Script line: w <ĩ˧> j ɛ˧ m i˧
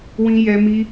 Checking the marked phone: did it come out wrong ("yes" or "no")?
no